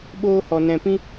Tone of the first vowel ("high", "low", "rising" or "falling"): high